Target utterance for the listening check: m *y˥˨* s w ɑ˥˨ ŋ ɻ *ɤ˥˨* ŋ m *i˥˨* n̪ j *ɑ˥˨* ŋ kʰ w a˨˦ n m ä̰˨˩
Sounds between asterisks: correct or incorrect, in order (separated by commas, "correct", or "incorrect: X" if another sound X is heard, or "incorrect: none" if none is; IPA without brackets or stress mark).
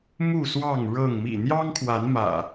incorrect: u˥˨, correct, incorrect: ḭ˨˩, incorrect: ɑ˦